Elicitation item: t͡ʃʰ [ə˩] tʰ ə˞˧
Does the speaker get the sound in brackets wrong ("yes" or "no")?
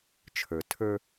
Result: yes